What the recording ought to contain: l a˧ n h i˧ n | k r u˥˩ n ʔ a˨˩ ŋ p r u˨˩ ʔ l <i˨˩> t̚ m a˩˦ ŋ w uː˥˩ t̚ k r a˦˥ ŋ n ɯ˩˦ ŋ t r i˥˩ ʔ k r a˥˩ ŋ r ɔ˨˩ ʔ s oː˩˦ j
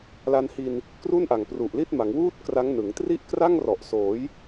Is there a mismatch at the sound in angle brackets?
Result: yes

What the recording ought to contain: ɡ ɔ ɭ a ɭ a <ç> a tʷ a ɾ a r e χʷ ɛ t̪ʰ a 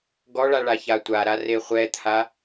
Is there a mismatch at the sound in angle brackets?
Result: no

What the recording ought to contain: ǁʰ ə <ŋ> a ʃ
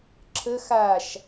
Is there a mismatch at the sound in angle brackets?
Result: yes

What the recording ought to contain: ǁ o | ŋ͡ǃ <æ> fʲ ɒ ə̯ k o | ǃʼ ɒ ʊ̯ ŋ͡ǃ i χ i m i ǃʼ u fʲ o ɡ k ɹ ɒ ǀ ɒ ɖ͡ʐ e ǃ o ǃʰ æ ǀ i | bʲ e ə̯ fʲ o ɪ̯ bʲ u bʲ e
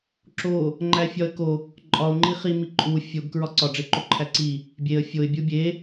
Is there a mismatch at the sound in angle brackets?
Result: no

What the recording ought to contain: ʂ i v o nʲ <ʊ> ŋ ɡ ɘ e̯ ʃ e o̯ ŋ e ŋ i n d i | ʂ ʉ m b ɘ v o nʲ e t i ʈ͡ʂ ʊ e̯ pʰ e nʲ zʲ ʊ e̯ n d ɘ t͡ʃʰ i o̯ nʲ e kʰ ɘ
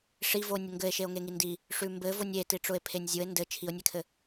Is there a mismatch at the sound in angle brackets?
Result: no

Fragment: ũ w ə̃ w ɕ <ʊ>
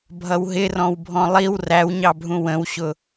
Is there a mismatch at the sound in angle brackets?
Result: no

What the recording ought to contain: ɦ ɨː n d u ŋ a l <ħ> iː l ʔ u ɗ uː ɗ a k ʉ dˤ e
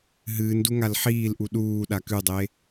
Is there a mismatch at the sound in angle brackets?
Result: no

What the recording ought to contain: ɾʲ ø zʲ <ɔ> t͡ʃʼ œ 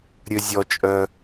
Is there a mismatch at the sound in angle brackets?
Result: no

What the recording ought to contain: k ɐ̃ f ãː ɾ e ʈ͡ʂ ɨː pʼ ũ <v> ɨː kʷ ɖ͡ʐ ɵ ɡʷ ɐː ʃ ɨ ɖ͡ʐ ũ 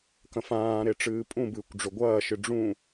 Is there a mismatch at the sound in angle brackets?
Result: yes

